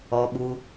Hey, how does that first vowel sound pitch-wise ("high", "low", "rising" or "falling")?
low